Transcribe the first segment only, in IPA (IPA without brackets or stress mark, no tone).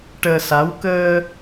ʈ